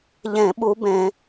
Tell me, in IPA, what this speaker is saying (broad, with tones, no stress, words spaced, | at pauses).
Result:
ʎẽ˧˩˧ɓu˨˦bẽ˧˩˧